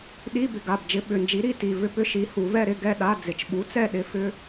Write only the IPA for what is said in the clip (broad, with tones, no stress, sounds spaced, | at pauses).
ɗ i˧˥˧ b ɪ˩˧ ɡ a˩˧˩ b d͡ʒ ɪ˧˥˧ ɓ ʏ˩˧˩ n d͡ʒ i˨˥ ɾ i˧˥˧ t i˩˧˩ v ʏ˥˧ p ʏ˥˧ ʃ i˨˥ h u˩˧ v ɛ˥˧ ɾ ɪ˧˥˧ ɡ ɛ˥˧ ɗ a˧˥˧ d͡z ɪ˩˧ t͡ʃ ɓ u˨˥ t͡s ɛ˥˧ ɗ ɪ˨˥ f ʏ˧˥˧